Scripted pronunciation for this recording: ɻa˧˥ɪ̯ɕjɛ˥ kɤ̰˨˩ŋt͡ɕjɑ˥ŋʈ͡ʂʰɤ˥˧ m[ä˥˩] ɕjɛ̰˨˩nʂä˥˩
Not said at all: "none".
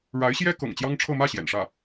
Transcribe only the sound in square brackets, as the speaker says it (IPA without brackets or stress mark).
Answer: ä˥˩